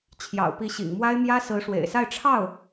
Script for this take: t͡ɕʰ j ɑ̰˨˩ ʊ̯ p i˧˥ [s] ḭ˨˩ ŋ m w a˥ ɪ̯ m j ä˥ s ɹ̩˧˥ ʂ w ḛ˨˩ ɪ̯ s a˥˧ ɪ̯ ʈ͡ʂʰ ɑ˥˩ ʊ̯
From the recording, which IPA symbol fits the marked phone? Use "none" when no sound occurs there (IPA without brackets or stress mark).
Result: ɕ